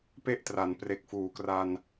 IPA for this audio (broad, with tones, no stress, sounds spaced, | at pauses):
p e˥˩ ʔ t r a˩˦ n p r e˨˩ k̚ f uː˩˦ k r a˧ n